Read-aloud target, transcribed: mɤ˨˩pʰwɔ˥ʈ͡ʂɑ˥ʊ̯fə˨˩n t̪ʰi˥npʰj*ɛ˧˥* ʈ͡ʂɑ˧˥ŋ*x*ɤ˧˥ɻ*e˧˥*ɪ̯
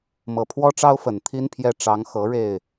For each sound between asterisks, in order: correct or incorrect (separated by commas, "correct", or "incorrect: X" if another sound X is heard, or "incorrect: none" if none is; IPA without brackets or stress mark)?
incorrect: ɛ˥˩, correct, incorrect: e˥˩